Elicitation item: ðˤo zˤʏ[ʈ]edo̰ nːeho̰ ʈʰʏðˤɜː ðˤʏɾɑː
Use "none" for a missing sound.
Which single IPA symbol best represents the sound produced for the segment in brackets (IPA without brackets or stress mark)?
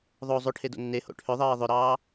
ʈʰ